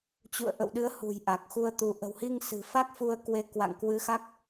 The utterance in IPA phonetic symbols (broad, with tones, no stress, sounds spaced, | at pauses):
t͡ɕ ṵ˧˨ ə̯ ʔ ə̰˧˨ w ɗ ɨ˨˦ ə̯ h ṳ˨˩ j ʔ a˨˩ k̚ x u˧ ə̯ t̪ u˨˦ ʔ ə̤˨˩ w h i˧ ŋ s ɨ̤˨˩ f a˦˥ k̚ f u˧ ə̯ k w e˨˦ k w a̰˧˨ ŋ k w ɨ˨˦ x a˦˥ k̚